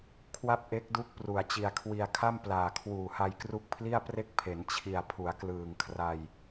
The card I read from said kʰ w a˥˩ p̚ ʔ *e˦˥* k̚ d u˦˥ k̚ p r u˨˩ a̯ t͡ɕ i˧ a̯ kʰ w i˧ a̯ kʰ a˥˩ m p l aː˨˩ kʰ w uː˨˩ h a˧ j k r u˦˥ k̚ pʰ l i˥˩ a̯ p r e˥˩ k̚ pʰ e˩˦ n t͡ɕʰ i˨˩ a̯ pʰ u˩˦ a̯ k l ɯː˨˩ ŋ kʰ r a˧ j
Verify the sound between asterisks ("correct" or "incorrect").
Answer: correct